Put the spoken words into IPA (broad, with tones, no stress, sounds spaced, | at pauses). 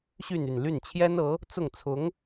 ɕ y˥˧ n y˥˧ n l y˥˩ n t͡ɕʰ j ɛ˥ n ɤ˧˥ | t͡s ʊ˥˩ ŋ t͡sʰ ʊ˧˥ ŋ